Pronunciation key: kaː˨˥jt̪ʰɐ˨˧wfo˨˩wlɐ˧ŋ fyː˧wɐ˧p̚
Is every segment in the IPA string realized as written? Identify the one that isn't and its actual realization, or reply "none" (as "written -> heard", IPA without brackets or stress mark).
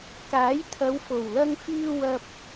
none